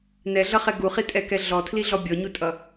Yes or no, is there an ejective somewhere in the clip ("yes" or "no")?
yes